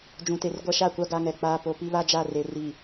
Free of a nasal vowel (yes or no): no